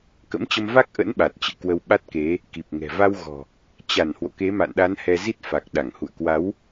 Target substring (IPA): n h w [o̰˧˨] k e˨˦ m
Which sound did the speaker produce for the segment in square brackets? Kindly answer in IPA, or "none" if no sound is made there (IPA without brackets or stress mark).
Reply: o̰˧˨